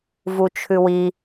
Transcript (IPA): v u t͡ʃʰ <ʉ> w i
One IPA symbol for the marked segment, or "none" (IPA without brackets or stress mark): ʉ